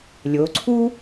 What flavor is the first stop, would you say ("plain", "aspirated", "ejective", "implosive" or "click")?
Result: click